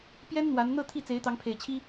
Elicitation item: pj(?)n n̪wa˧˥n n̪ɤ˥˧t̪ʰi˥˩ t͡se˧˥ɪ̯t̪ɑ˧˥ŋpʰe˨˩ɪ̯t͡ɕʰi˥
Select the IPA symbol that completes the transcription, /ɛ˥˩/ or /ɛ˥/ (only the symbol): ɛ˥